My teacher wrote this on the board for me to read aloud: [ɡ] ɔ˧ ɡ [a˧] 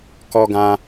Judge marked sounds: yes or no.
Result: no, no

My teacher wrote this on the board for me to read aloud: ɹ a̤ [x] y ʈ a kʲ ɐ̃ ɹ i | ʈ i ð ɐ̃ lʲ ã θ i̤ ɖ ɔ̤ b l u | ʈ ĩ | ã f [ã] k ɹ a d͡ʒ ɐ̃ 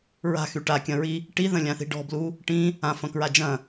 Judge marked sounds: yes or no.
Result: yes, no

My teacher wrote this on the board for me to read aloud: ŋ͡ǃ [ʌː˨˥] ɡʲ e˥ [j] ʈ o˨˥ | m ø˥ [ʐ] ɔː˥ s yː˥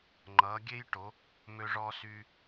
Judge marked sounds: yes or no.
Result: yes, yes, yes

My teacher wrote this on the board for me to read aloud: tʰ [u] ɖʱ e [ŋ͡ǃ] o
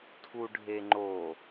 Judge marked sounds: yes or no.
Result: yes, yes

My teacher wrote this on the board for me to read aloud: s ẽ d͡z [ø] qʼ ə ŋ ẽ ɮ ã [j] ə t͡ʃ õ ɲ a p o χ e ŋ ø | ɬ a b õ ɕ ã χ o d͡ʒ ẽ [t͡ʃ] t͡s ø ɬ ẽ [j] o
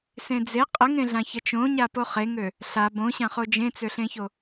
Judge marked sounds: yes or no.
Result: no, no, no, no

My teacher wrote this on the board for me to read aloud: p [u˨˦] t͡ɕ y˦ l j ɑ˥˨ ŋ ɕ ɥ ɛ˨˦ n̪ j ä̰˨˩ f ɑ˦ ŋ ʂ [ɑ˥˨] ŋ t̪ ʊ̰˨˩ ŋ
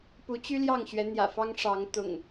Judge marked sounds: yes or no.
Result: yes, no

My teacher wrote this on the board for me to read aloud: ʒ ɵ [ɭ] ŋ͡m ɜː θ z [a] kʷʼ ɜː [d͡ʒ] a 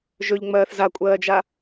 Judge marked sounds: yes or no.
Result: no, yes, yes

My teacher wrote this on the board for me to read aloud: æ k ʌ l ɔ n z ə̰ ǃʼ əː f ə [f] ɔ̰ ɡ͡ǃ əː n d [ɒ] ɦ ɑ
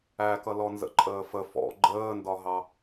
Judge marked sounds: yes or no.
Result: yes, yes

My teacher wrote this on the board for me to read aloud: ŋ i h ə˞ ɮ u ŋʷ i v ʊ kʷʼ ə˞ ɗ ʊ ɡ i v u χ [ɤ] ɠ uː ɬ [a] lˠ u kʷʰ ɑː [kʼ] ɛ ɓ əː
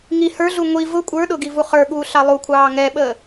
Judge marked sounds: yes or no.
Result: no, no, no

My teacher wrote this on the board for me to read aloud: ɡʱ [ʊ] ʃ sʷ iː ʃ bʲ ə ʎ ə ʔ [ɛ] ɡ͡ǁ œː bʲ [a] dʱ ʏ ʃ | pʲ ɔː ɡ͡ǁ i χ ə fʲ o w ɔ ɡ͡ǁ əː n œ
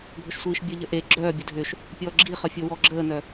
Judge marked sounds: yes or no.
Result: yes, no, no

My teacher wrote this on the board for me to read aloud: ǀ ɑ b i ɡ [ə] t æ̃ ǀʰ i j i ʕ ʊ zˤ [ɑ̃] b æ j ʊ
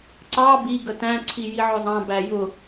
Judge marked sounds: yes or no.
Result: yes, yes

